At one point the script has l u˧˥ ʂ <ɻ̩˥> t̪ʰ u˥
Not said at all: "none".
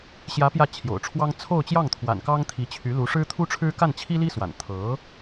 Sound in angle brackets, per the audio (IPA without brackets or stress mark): ɻ̩˥